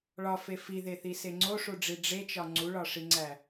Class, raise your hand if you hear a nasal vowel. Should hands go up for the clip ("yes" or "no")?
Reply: no